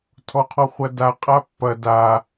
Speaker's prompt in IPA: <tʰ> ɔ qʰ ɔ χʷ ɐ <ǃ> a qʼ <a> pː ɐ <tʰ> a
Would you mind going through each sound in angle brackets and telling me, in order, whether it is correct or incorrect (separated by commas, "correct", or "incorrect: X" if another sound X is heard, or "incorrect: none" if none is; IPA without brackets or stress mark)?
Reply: correct, incorrect: d, correct, incorrect: d